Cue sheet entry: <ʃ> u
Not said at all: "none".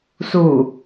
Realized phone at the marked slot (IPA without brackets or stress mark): s